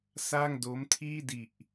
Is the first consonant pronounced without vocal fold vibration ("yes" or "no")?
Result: yes